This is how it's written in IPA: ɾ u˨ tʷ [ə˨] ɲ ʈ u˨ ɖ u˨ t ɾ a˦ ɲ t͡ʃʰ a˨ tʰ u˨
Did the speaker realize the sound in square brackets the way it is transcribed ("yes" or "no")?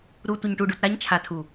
yes